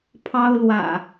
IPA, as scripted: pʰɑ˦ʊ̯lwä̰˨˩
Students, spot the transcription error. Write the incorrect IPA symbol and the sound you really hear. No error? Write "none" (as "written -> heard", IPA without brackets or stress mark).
none